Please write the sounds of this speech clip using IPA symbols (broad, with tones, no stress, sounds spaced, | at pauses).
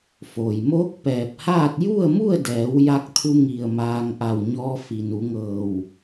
f oː˩ j m oː˧˥ k̚ p ɛː˧˩ p̚ h aː˥˨ t̚ j u˥˨ ə̯ m u˥˨ ə̯ d ɛː˩˧ w j a˧ k̚ t̪ʰ u˧ ŋ i˧˩ ə̯ m aː˧ ŋ ʔ a˧˩ w ɲ ɔː˧ f i˩ n u˩˧ ŋ ɤː˧˩ w